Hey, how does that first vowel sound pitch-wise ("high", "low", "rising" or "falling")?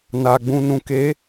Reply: low